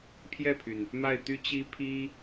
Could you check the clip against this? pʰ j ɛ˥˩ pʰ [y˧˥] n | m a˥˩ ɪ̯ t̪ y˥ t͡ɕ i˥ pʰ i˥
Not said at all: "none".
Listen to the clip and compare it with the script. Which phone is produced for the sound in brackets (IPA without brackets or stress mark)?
y˩